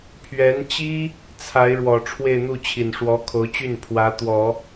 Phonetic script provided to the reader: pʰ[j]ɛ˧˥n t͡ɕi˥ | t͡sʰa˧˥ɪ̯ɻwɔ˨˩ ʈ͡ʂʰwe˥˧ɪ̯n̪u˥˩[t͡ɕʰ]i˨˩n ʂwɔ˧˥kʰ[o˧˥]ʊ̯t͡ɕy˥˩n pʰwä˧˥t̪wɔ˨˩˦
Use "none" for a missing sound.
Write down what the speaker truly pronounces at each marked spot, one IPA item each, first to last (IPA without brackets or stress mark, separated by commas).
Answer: ɥ, t͡ɕʰ, o˧˥